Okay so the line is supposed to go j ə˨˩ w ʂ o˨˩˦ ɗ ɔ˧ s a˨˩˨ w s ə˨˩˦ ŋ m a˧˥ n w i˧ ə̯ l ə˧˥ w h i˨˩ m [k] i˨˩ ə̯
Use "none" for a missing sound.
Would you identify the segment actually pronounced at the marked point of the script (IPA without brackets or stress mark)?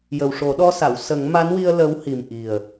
ʔ